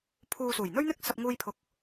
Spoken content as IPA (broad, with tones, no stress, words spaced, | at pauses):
pʰuː˨ suː˨˩jn̪ɵ˥ɥn̪ɪ˥k̚ sɐ˧p̚ŋuː˧jpʰʊ˨˥k̚